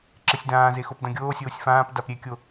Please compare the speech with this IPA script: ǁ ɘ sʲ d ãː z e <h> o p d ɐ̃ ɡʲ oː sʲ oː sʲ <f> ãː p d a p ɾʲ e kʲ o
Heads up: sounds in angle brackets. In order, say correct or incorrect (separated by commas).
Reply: incorrect, correct